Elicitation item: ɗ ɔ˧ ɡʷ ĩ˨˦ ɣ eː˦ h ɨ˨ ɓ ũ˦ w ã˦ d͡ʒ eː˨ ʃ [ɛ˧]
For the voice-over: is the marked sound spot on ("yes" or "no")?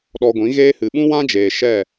no